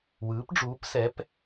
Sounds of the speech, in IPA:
w ɯː˩˥ p ɖ͡ʐ uː˩˥ p s ɛ˩˥ p

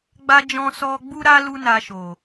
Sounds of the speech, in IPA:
ɡ͡b a˧ d͡ʒ ɔ̃˧ s ɔ˧ ɡ͡b u˦ ɾ a˦ l u˦ n a˧ ʃ o˨

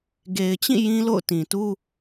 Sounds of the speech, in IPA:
ɡ e˨ ɪ̯ t͡ɕ ĩ˦˨ j ĩ˦ l o̰˦˨ ʊ̯ t ĩ˨ t u˦

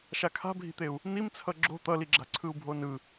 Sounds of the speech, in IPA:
ʃ a kʰ a̤ bʱ i̤ t̪ e u̯ | n̪ i m t͡sʰ ʌ ɡ͡ǁ o̤ t̪ ʌ l i ɡ͡ǁ a̤ ǀʰ ɯ u̯ bʱ o n ɯ

